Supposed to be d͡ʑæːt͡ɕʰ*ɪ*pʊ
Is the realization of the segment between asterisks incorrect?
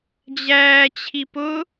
yes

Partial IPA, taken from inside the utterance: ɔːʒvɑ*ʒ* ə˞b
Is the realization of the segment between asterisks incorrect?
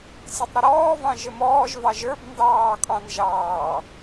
no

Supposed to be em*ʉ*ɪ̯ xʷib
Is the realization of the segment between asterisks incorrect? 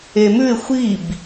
no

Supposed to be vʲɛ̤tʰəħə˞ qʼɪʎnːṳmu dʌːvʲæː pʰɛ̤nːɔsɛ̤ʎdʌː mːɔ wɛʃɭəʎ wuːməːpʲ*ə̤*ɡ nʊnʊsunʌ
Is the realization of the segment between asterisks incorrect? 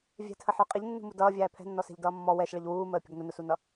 no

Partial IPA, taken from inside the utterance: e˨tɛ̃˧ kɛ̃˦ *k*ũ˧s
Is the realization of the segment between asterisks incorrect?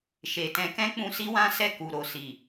yes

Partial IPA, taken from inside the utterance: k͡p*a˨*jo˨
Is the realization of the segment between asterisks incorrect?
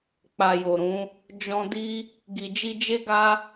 no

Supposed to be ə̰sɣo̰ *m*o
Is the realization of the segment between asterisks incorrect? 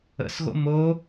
no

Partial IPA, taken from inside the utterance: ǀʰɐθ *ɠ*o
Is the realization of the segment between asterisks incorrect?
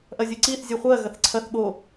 no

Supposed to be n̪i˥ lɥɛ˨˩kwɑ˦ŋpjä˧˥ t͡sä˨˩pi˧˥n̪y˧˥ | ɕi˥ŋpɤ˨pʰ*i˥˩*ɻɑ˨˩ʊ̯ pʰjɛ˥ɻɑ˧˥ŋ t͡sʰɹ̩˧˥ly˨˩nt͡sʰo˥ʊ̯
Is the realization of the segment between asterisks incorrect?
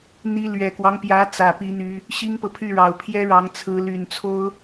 yes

